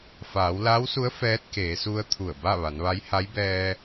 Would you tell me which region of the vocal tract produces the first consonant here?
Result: lips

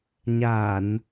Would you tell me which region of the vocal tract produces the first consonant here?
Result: palate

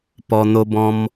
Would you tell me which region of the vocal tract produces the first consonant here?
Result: lips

